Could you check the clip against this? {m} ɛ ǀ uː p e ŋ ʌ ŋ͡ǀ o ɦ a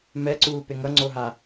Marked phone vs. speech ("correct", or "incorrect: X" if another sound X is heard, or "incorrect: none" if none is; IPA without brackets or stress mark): correct